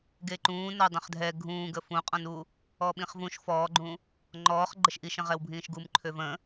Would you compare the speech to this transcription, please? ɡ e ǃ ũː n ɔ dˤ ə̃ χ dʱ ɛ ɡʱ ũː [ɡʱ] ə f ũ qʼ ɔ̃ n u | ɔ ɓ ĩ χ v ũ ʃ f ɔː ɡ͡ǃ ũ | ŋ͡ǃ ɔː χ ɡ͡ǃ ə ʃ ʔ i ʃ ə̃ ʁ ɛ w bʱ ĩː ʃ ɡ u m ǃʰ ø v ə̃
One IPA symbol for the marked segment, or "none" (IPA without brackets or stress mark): ɡ